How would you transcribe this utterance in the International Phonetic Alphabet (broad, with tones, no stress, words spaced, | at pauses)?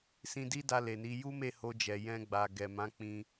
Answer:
sĩ˧di˦da˧ le˨ni˨˦ ju˦me˦˨ho˧d͡ʒɛ˨ jɛ̃˧ɡ͡ba˨ ɡɛ˨mã˨˦ k͡pĩ˧